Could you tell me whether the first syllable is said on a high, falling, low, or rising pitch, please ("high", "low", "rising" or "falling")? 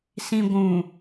low